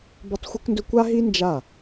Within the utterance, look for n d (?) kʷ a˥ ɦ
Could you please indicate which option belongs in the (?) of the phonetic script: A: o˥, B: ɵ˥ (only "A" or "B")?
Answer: B